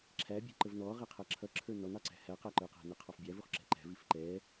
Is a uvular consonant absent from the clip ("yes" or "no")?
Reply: no